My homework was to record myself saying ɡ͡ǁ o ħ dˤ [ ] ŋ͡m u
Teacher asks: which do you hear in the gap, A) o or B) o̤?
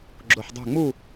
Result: B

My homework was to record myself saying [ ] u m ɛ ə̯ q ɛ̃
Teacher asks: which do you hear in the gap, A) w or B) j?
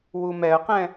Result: A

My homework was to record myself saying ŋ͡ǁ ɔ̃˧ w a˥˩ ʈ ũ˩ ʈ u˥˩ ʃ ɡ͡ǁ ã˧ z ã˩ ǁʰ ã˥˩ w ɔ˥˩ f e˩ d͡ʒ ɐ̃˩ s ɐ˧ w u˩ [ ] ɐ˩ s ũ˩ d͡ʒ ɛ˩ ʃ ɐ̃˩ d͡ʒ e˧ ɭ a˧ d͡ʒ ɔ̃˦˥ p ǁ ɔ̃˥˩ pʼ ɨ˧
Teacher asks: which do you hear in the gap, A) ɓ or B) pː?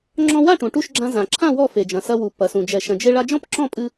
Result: B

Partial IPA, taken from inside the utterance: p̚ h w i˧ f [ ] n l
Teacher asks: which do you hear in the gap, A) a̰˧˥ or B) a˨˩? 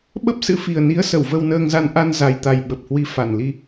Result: B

